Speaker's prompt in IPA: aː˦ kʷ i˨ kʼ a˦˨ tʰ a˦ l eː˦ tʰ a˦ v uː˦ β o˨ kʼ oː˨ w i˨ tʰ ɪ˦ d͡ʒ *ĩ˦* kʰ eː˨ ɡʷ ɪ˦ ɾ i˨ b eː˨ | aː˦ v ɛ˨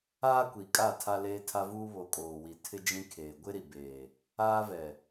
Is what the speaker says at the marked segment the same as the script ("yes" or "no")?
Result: yes